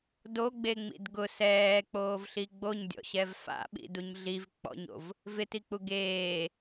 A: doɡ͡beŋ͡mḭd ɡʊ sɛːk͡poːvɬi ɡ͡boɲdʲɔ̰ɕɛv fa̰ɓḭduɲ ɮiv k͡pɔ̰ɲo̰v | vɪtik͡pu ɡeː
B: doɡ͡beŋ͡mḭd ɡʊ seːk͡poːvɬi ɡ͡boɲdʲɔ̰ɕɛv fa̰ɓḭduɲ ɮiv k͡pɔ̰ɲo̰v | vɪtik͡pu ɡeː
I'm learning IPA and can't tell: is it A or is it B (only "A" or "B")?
A